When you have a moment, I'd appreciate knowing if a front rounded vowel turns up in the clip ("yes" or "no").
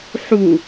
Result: no